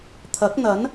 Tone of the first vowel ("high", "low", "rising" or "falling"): rising